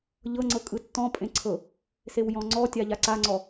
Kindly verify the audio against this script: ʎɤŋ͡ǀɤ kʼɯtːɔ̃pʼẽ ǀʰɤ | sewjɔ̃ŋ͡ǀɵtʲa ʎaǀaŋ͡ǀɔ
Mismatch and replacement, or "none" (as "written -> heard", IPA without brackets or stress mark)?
ɵ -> ɔ